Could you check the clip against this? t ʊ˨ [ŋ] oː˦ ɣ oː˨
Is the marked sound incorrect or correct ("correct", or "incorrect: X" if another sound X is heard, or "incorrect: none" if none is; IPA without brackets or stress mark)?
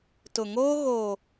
correct